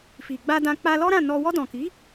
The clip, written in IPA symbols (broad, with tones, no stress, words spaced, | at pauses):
fi˨ɡ͡ba˧dã˧ k͡pa˧lɔ˦ɾã˦˨nɔ˧ wɔ˧dɔ̃˨ki˨˦